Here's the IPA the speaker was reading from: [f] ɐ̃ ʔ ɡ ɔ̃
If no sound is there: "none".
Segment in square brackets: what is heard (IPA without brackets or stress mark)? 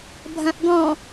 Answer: bʱ